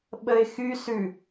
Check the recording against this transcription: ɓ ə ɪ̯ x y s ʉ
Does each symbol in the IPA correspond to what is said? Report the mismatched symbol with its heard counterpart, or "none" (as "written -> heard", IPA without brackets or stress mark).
none